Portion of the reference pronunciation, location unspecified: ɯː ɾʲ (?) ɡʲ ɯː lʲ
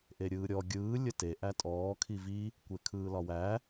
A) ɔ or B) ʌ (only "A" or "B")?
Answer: A